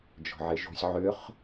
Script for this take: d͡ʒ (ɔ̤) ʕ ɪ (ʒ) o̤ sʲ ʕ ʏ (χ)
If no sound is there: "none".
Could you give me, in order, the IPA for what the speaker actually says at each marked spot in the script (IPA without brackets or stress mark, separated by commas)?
ɔ̤, ʒ, χ